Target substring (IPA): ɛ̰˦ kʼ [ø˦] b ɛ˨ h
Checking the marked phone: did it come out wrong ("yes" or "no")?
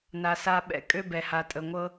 no